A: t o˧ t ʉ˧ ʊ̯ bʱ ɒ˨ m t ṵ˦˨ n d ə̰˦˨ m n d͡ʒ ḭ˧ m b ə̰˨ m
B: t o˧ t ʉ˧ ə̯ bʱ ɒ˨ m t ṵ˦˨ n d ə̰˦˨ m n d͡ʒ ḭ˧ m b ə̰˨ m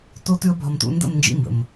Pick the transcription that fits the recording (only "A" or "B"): B